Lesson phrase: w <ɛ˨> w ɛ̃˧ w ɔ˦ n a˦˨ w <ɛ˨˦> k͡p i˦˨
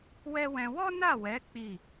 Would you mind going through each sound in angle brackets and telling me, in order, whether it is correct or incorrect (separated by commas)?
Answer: incorrect, correct